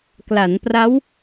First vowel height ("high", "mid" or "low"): low